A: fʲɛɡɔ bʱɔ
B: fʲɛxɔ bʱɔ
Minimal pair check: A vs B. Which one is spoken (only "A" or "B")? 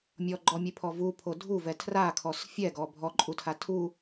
A